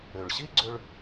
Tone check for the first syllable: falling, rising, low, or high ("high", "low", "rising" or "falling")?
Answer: low